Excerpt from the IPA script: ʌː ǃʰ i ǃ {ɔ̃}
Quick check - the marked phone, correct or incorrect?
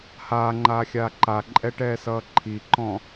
correct